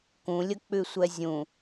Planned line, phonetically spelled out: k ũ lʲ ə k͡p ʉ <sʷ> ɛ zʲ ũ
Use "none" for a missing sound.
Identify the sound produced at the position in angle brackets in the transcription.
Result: sʷ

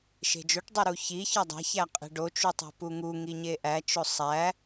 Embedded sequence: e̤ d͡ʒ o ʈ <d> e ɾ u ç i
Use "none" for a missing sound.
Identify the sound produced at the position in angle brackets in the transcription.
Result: dˤ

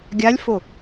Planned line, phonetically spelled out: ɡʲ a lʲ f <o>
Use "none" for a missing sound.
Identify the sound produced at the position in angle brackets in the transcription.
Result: o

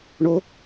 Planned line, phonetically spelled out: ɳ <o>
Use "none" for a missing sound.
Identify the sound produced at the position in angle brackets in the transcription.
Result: o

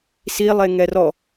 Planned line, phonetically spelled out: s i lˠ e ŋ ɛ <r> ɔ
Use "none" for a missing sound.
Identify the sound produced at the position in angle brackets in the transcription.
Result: r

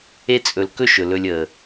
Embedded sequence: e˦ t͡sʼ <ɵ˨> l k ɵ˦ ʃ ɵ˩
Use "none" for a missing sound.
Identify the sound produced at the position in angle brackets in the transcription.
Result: ɵ˨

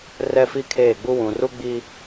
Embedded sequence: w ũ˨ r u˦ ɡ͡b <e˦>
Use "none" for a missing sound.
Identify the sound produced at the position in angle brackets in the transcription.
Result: i˦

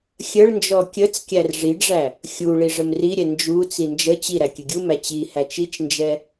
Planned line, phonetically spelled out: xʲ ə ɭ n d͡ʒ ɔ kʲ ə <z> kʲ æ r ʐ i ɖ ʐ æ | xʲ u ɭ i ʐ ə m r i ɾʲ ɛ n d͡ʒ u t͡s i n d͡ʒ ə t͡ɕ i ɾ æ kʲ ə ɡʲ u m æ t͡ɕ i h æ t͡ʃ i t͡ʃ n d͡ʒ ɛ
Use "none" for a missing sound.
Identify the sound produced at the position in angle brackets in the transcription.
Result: t͡s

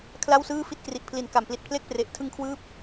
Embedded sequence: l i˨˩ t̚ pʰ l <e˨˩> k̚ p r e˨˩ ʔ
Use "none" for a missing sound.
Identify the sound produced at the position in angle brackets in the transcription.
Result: e˥˩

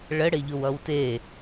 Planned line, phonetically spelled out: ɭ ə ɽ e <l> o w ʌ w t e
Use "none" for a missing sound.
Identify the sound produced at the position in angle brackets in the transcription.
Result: ʎ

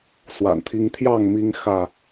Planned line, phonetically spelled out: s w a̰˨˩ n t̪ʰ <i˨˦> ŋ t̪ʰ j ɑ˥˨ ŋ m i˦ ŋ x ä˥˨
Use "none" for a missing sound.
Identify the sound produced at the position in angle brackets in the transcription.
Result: i˦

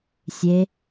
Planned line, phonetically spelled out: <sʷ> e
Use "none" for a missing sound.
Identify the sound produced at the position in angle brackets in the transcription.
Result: sʲ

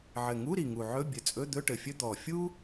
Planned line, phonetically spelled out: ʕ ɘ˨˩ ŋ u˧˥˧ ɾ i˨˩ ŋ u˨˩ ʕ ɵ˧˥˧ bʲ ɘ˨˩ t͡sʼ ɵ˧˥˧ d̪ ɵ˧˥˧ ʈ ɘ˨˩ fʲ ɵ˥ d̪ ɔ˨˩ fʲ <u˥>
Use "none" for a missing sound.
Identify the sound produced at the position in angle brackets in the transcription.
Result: u˥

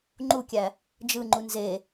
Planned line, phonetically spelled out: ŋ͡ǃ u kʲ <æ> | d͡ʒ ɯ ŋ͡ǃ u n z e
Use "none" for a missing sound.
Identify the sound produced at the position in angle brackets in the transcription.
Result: æ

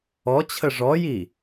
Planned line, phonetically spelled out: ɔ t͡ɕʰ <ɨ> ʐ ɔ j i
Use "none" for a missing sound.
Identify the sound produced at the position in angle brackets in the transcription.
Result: ə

